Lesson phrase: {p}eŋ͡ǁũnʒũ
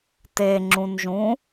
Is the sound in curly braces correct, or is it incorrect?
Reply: incorrect